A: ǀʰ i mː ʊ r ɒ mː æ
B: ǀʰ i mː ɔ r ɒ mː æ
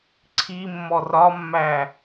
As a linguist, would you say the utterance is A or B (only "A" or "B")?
B